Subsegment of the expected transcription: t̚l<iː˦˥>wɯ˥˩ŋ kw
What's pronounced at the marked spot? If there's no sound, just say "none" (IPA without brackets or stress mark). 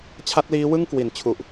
iː˦˥